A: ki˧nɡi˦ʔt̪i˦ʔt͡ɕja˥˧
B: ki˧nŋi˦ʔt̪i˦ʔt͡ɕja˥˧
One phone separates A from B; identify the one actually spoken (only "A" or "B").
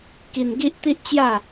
A